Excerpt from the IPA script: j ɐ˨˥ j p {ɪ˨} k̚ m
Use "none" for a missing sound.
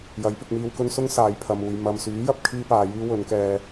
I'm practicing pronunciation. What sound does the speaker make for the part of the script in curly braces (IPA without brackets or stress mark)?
ɪ˧